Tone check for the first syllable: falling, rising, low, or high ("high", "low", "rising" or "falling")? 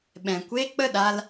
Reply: low